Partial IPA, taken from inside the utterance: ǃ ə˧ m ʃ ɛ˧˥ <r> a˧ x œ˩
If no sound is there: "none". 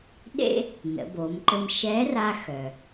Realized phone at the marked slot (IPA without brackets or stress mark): r